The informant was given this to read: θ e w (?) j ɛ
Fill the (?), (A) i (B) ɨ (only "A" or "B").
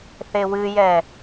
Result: B